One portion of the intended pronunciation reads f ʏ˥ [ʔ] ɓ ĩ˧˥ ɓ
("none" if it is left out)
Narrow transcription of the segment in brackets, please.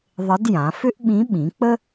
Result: ʔ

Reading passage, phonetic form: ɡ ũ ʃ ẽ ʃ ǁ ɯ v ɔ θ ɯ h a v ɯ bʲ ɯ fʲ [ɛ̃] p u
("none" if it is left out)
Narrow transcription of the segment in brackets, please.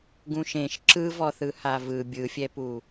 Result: ɛ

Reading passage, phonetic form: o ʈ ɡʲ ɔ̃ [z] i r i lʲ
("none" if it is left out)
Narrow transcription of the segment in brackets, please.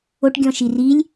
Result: ʃ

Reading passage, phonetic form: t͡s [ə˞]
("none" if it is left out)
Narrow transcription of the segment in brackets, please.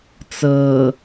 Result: ɤ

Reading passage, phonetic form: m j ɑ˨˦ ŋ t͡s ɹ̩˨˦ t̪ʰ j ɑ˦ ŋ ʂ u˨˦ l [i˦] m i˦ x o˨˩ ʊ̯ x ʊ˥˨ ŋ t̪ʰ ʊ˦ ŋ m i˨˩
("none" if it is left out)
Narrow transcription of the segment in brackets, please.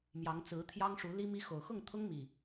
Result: i˦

